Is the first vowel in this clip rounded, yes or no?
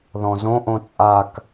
yes